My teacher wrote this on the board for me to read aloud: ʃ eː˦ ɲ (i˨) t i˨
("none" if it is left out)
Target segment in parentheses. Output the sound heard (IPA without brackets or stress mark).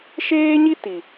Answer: i˦